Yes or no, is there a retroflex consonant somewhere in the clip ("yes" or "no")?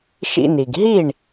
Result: yes